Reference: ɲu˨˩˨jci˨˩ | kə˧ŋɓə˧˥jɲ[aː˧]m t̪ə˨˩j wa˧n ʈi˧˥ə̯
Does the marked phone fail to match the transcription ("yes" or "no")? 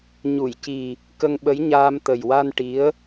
no